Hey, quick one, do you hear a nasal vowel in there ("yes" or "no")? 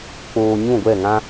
yes